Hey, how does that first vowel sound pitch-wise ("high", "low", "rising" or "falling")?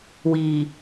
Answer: low